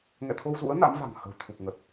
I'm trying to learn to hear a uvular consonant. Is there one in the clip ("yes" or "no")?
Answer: no